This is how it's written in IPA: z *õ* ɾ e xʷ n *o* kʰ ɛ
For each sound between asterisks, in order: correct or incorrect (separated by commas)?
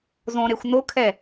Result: correct, correct